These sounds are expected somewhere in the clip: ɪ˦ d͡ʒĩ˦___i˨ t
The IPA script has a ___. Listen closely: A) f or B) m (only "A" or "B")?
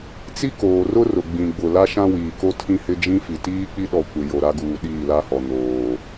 A